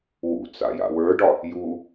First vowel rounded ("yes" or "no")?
yes